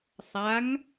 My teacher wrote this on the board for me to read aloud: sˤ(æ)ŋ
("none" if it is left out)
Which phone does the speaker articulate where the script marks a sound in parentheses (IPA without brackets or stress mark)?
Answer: a